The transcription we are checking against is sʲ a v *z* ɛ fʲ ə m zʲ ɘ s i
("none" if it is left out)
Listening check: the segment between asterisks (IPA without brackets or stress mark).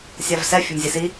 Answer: s